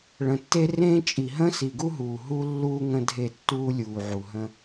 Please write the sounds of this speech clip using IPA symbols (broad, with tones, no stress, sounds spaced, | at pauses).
ɭ ə̃˨ tː e˦ r ẽː˦ t͡ʃʼ i˨ ɦ ə̃˦ s i˨ ɡ u˦ ɦ uː˨ ɦ u˦ lː uː˦ ŋ ə̃˦ dʱ e˦˨ tː uː˦ lʲ uː˨ ʕ u˨ ɦ ə̃˦